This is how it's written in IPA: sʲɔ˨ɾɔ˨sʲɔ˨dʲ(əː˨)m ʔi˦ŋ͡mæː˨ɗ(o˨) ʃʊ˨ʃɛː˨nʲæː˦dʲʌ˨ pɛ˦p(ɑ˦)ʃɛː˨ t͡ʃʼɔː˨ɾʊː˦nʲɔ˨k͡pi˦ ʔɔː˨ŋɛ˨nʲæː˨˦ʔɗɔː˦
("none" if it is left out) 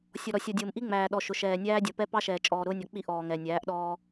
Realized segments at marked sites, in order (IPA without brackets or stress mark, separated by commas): ʊː˨, ɔ˨, ɑ˦